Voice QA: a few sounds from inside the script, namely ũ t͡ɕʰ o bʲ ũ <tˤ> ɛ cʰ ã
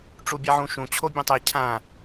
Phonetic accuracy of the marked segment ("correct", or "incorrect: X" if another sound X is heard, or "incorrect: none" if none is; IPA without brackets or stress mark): correct